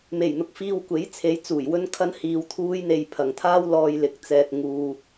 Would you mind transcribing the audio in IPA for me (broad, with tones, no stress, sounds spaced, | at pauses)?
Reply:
m e˨˩ j n̪ ʊ˧ k̚ f iː˧ w kʷ e˨˥ j t͡sʰ e˨˧ j t͡s uː˨˩ j w ɵ˥ n kʰ ɐ˥ n h iː˧ w t̪ʰ uː˥ j n̪ e˧ j pʰ ɐ˨ ŋ t̪ʰ aː˥ w l ɔː˧ j l ɪ˨˥ k̚ t͡s ɛː˧ t̚ ŋ uː˧